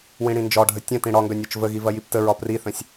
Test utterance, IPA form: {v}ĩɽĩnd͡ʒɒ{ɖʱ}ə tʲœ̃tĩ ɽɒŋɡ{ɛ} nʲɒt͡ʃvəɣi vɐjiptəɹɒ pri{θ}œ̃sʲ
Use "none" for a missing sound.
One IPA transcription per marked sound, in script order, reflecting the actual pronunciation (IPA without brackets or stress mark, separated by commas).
w, ɖʱ, œ, θ